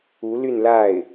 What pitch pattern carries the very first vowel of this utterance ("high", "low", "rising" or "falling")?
rising